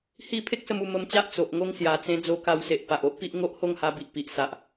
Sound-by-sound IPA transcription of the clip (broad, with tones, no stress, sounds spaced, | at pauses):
h i˥˧ pʰ e˦ k̚ s ə˧ m u˧ m ə˧ m t͡ɕ a˦ ʔ t͡s o˨ ʔ ŋ o˧ ŋ s j a˨˩ t͡s ẽ˧ d͡z o˧ k a˧ w s e˨ ʔ p a˨ ʔ o˦ ʔ p i˦ ʔ ŋ o˦ ʔ h o˥˧ ŋ h a˧ b i˨ ʔ p i˨ ʔ s a˨ ʔ